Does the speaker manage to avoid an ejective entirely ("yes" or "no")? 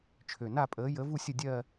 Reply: no